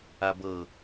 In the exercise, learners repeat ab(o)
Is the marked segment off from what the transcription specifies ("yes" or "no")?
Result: yes